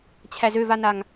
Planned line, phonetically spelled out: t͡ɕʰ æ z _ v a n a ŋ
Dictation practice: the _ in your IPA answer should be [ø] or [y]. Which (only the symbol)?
ø